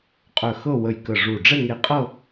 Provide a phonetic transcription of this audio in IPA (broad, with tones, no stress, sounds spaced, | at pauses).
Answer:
qʼ œ˧˩ x ɤ˥˧ w ə˧˩ j k ə˧˩ ʐ u˧˩ ɖ͡ʐ ɛ˥˧ ŋ e˧˥ qʼ ɤ˥˧